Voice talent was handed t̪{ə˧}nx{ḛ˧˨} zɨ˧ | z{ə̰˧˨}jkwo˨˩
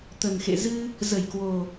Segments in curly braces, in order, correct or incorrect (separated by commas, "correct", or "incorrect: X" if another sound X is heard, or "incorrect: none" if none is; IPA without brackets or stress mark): incorrect: ə˨˩, correct, incorrect: ə˧˩